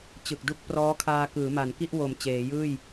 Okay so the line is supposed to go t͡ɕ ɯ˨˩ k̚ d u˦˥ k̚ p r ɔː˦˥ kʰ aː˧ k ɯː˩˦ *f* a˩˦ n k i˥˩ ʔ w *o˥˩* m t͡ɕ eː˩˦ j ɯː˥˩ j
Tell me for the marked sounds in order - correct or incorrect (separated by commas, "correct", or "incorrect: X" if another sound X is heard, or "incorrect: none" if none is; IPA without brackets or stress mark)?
incorrect: m, incorrect: o˨˩